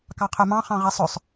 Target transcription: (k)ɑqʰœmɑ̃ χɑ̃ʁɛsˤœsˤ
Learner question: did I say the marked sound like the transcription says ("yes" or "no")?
yes